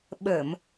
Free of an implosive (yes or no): no